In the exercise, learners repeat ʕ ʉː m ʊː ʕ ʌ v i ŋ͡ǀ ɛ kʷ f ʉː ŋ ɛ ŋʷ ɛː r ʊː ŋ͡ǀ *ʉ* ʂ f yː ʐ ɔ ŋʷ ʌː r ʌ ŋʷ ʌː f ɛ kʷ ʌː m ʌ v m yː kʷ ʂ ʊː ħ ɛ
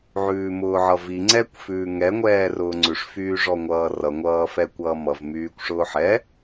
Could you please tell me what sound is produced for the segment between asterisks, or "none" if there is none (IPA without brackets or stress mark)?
ʉ